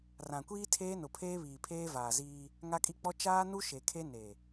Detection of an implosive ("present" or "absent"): absent